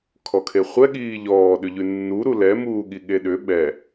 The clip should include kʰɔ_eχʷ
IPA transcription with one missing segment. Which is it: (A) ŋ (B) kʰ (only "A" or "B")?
B